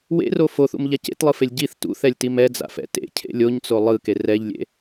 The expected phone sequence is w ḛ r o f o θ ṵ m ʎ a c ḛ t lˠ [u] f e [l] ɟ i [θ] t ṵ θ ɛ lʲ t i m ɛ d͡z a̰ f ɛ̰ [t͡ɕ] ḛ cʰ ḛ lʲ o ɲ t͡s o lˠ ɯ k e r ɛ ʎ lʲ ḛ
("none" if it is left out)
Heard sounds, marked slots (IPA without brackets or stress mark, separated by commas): ɯ, lʲ, θ, t